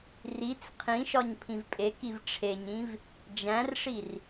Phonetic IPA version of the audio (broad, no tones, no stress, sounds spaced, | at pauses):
r i t͡s qʰ ĩ ʃ ɒ ɲ pʰ ĩ v pʼ e k i v ʈ͡ʂʰ e ɲ ĩ v | d͡ʒ æ̃ r ʂ i r